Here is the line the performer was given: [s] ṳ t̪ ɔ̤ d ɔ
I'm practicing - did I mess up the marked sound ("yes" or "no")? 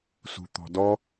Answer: no